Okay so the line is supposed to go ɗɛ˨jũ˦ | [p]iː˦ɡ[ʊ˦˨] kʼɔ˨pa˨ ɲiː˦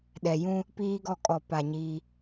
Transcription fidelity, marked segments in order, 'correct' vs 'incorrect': correct, incorrect: ɔ˦˨

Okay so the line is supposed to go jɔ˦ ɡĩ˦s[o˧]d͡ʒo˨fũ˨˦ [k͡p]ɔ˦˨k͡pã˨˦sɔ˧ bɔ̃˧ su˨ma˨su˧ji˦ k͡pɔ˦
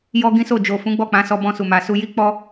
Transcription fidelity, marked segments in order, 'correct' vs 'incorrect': incorrect: o˦˨, incorrect: ɡ͡b

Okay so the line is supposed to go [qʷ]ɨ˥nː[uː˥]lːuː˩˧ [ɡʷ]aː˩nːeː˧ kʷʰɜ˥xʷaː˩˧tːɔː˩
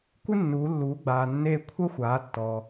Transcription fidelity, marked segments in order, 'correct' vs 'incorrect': incorrect: kʷ, incorrect: uː˩˧, incorrect: ɡ͡b

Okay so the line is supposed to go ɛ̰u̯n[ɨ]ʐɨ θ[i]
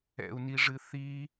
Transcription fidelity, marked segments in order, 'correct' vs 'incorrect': incorrect: i, correct

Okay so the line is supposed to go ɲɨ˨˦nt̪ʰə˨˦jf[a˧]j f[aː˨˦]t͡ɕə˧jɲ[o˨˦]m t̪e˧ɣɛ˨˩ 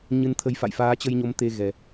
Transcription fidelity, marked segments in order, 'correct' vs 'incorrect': incorrect: a̰˧˨, correct, correct

